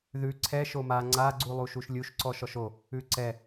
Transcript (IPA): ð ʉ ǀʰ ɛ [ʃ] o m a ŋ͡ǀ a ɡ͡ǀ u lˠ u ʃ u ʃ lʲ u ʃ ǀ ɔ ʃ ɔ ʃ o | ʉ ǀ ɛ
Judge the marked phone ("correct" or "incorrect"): correct